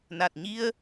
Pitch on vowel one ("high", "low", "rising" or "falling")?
low